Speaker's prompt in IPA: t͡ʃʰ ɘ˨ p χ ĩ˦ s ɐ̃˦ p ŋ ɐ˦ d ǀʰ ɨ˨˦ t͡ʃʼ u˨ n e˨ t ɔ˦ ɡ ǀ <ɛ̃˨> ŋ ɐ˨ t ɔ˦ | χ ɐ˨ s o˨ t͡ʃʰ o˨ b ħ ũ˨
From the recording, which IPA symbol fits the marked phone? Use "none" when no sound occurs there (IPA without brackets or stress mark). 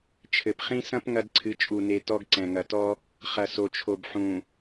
ɛ̃˨